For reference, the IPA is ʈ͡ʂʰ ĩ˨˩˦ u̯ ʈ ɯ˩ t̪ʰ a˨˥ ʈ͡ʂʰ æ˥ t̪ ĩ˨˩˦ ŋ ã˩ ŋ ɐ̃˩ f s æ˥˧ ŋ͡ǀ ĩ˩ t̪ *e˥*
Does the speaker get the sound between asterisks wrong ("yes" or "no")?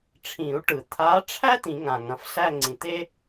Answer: no